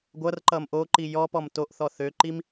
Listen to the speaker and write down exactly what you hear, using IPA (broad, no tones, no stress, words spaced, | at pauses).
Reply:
ɡʷʌrǃʌm ʔoǃi jɔpɔm toʔθɔ θøǃim